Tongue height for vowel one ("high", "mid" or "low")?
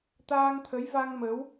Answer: low